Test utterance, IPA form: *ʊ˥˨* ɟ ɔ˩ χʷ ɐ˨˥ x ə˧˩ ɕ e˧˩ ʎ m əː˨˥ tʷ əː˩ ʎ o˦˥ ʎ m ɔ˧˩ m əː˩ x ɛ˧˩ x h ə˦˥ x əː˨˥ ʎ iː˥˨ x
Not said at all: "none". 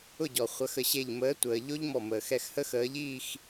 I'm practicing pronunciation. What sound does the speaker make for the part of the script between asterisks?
ʊ˥˨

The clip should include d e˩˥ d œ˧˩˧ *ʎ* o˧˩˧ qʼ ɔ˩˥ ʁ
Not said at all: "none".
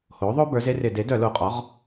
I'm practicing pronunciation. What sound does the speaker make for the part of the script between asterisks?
l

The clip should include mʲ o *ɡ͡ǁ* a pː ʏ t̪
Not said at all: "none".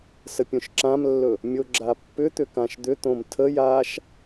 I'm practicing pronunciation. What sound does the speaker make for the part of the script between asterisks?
ɡ͡ǁ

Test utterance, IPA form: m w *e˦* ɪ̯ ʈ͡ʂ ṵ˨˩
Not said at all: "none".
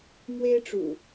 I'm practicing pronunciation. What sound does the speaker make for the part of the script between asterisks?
e˦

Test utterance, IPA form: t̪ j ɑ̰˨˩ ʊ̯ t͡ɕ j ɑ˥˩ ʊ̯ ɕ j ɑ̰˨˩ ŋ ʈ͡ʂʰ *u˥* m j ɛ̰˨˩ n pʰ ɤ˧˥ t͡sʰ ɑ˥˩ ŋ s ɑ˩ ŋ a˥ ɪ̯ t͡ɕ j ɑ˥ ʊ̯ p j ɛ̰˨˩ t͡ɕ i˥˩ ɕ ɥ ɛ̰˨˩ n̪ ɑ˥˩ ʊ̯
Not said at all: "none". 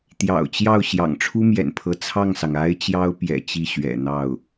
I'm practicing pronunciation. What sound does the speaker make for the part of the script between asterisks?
u˥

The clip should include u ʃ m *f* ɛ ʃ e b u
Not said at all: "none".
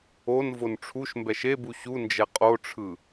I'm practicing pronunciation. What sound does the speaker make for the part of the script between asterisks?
b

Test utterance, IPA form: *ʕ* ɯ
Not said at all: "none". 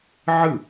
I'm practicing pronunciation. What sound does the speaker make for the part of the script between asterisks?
ʕ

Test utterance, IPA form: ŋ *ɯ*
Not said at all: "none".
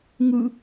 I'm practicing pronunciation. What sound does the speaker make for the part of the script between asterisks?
ɯ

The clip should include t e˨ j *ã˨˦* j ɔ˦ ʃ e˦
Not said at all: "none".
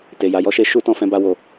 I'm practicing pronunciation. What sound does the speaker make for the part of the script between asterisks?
a˨˦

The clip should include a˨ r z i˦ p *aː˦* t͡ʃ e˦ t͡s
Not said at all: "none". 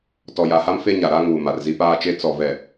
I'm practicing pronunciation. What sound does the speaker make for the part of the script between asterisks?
aː˦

